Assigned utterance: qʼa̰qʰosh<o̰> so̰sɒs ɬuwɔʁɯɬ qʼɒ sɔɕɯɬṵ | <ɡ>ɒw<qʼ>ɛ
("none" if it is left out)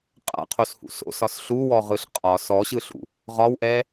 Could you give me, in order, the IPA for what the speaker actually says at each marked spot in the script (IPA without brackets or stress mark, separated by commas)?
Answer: ṵ, ʁ, ʔ